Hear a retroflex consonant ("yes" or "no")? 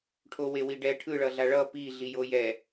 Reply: yes